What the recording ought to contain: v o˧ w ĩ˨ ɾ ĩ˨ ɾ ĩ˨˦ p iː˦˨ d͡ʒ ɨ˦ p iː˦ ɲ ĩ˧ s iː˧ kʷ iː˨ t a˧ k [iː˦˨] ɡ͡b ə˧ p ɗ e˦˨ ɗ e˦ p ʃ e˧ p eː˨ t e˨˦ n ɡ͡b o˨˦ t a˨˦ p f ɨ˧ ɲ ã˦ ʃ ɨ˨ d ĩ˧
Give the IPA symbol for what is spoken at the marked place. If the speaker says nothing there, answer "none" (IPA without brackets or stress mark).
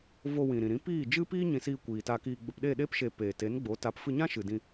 iː˧